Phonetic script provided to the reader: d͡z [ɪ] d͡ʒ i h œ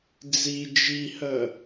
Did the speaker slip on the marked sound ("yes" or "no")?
yes